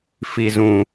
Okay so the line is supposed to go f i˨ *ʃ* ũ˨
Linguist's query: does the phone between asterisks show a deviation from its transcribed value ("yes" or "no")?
yes